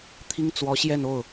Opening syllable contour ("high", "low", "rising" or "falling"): high